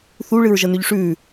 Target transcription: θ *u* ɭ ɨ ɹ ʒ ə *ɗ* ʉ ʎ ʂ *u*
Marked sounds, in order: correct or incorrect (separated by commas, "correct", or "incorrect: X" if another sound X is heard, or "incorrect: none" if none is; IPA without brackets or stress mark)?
correct, incorrect: n, incorrect: ʉ